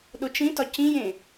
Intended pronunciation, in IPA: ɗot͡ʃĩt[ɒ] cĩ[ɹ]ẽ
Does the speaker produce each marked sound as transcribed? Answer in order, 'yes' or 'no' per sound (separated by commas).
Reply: yes, no